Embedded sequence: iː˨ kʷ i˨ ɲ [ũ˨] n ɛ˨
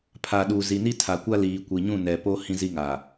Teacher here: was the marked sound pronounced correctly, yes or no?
no